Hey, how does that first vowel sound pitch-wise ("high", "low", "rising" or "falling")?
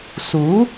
rising